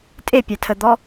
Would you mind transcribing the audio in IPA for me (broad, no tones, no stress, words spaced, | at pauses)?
tʼepʲatʰəd̪ɔ